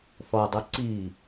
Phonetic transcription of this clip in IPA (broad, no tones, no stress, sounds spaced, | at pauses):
θ ɔ dˤ u ǀ i